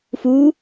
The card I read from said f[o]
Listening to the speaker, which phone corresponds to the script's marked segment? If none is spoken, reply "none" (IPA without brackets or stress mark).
u